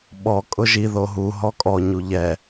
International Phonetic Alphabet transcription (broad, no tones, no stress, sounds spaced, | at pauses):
ɓ ɔ kʼ ʊ ʒ i ð o ɦ u ɦ ɔ kʼ ɔ ɲ u ʎ ɛ